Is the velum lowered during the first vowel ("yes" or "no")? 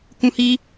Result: yes